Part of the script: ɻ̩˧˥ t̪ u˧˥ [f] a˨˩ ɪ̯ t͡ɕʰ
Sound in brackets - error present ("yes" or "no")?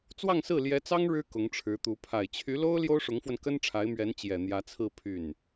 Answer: yes